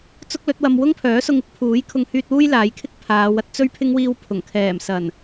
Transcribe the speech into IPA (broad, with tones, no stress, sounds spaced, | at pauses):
t͡s ʊ˥ k̚ l ɵ˨˥ t̚ w ɐ˧ m w ʊ˥ ŋ pʰ œː˨˥ s ʊ˧ ŋ ɪ˥ k̚ pʰ uː˨˥ j kʰ ʊ˧ ŋ h yː˧ t̚ w uː˥ j l aː˨˧ j kʰ ɪ˥ k̚ pʰ aː˨˧ w ɐ˧ t̚ t͡s ɵ˥ ɥ pʰ ɪ˥ ŋ w iː˧ w pʰ ʊ˨˩ ŋ kʰ ɛː˨˩ m s ɐ˨˩ n